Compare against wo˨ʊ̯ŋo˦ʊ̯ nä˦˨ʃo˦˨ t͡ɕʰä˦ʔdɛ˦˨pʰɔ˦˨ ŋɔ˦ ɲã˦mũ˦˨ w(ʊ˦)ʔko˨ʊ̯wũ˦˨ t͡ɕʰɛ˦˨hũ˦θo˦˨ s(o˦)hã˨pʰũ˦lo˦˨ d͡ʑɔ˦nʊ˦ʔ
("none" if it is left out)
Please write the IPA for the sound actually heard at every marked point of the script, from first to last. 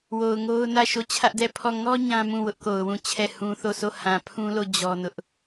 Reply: ʊ˦, o˦˨

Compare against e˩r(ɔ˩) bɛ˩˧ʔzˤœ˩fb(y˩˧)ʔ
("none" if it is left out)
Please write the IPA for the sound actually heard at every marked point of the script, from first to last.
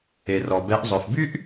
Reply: ɔ˩, y˥

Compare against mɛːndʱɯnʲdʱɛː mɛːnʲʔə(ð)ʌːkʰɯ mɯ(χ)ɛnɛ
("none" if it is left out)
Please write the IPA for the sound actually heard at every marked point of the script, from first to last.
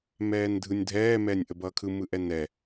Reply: b, ʔ

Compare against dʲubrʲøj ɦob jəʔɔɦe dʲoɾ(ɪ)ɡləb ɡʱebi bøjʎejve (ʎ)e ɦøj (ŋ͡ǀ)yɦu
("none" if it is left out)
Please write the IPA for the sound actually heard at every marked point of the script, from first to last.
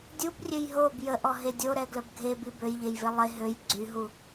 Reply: ɛ, lˠ, ɡ͡ǀ

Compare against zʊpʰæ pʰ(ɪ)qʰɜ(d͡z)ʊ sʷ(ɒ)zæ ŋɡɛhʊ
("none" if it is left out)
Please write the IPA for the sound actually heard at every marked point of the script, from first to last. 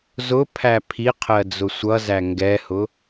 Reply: i, d͡z, ʌ

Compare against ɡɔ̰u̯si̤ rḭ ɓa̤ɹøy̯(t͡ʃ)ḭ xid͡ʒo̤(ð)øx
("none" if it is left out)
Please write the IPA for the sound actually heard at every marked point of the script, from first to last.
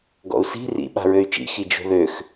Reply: t͡ʃ, ð

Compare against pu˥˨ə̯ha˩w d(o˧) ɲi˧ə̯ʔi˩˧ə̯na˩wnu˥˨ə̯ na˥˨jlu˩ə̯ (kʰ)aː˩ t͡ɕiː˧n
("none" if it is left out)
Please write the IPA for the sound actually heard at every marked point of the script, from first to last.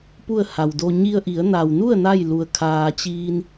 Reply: o˧, kʰ

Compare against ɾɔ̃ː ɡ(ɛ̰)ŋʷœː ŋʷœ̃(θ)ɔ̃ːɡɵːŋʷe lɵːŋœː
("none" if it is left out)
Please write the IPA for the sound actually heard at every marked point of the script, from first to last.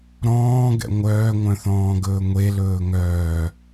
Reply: ɛ̰, θ

